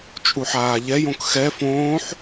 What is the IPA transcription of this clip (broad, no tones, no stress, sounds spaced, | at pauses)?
t͡ʃʼ u ħ aː ʎ ɛ j õ k x ɛ f õː ħ